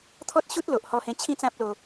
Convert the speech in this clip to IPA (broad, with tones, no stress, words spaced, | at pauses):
t̪ʰɔ˦t̚ɕu˦t̚lo˨ʔ hɔ˧hẽ˧ t͡ɕʰĩ˦t͡sã˦p̚ lo˧